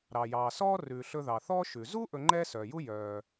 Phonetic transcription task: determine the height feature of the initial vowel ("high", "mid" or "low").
low